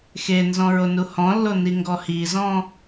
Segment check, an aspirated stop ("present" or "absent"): absent